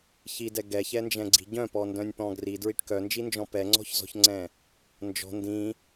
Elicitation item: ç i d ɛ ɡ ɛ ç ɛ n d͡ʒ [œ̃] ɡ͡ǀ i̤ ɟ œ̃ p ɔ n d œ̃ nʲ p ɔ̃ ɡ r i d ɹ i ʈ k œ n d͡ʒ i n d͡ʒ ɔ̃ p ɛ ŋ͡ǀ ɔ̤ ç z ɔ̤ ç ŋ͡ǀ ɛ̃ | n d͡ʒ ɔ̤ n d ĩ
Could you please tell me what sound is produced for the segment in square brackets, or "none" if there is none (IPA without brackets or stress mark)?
ɛ̃